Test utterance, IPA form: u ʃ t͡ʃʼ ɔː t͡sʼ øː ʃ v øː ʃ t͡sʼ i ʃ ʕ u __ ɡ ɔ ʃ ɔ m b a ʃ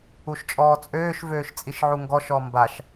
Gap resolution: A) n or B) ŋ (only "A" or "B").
B